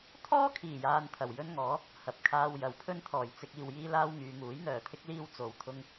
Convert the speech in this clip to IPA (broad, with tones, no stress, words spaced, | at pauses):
t̪ʰɔː˥kʰiː˨˩jaː˨n t̪ʰɐ˨˩wjɵ˥nŋɔː˨˥ | hɐ˨p̚kʰaː˧w jɐ˨˧wpʰɵ˥nt̪ʰɔː˨j t͡sɪ˧k̚ iː˨wjiː˥laː˥wŋyː˨˧ ŋuː˨˥jn̪œː˨t̪ʰɪ˥k̚liː˥w t͡so˧wt̪ʰʊ˥ŋ